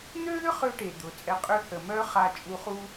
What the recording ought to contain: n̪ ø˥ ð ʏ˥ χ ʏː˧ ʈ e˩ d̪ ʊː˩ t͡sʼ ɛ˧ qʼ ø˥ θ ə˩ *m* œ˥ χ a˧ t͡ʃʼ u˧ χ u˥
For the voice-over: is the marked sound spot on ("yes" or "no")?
yes